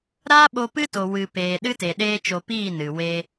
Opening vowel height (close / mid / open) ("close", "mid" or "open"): open